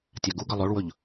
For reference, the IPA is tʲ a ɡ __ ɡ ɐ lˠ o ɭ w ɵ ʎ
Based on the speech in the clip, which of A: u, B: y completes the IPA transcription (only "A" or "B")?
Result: A